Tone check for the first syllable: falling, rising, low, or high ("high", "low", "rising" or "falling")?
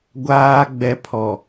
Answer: low